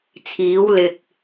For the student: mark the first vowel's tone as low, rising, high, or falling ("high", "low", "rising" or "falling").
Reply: rising